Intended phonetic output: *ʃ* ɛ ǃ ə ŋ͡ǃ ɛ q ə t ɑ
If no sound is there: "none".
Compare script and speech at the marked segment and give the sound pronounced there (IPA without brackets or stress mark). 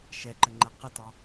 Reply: ʃ